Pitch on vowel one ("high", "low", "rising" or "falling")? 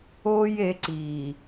high